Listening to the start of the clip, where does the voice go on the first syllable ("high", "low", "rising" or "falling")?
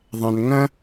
low